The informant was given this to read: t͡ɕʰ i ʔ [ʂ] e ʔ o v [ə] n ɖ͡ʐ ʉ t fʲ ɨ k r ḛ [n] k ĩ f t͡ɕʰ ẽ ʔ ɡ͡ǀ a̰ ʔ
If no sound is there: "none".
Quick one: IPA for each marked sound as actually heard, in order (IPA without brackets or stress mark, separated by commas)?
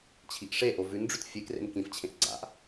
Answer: ʂ, ʉ, n